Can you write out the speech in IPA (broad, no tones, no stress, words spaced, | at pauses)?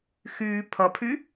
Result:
xyː pʰʌpʰy